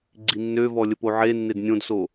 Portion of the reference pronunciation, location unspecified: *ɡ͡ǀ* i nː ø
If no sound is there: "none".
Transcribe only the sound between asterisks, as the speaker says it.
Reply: ɡ͡ǀ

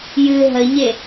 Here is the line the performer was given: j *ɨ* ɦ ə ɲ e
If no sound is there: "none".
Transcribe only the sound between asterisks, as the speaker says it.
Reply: ɨ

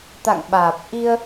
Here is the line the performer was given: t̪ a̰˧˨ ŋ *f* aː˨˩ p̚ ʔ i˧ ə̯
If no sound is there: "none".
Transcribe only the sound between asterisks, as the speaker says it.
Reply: ɓ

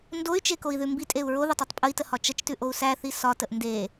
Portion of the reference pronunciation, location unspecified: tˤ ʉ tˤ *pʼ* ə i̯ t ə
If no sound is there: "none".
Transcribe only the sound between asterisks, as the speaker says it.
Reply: pʼ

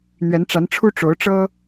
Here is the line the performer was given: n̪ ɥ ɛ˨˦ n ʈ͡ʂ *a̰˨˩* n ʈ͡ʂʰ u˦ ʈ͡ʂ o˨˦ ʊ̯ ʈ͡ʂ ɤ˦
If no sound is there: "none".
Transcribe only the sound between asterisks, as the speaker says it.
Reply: a˨˦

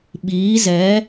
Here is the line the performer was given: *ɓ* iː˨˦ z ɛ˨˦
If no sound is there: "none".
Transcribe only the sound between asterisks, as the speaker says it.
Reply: ɓ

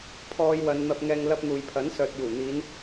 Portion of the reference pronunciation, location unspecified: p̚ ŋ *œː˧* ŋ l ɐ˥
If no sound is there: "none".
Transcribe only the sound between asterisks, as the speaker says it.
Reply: ɛː˧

